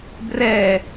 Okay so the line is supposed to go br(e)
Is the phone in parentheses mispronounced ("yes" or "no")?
yes